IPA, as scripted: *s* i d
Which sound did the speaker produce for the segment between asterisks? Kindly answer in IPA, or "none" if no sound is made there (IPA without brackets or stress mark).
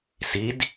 s